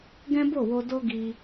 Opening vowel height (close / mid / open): mid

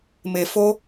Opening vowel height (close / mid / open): mid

